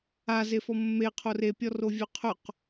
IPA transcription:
a z e f ɔ mː e qʰ o r e pʲ ɔ r o vʲ ɵ qʰ ɵ q

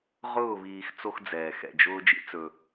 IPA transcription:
ʁ ʊː˥˧ β iː˧ x t͡s o˥ x d͡z ɛː˧ x ɛ̰˥˧ d͡ʒ ʊː˥ d͡ʒ ḭ˥ t͡s ɵ˧

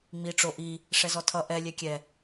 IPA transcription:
ŋ͡m i ʈ͡ʂ o ʔ i | ʂ ɛ z ɔ tʰ ʌ ʔ ɛ lʲ ɛ kʲ ɛ

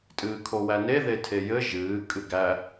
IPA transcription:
tʼ ɨː kʰ o w æ n e ð e tʰ e j ɘ ʒ ɨː kʼ ɨ ɡ æ

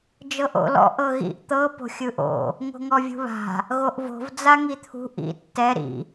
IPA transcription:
d͡ʒ ɤ ʔ o̰ l ɔ̰ ʔ ɤ ɣ ḭ ʔ t̪ ɤ p o̤ xʲ ɯ ʔ o̰ | ŋ o̤ ŋ ɔ vʲ ṳ β a̤ | ɣ o ʔ v o̤ v d͡z a ŋ i t̪ʰ ṳ ʔ ḭ tː ɛ ɾ ḭ

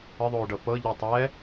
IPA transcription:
ə ðˤ oː ɖ ɤ p ɤ ʎ o tˤ ɛ

